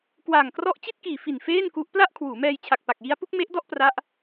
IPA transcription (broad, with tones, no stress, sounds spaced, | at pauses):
k w aː˨˩ ŋ k r ɔ˥˩ ʔ t͡ɕ i˥˩ t̚ k iː˨˩ f i˨˩ n f eː˥˩ n k u˦˥ ʔ p l a˥˩ ʔ kʰ w uː˩˦ m ɛː˧ j t͡ɕʰ a˨˩ k̚ p a˨˩ k̚ j i˦˥ a̯ p u˦˥ k̚ m e˦˥ ʔ d ɔ˥˩ ʔ p r a˦˥ ʔ